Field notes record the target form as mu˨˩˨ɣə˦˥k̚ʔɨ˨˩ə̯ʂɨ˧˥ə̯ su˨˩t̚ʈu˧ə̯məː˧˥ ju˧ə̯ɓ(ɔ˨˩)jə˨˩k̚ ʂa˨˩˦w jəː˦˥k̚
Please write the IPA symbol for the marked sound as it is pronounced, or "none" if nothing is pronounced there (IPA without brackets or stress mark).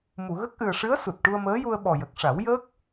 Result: ɔ˨˩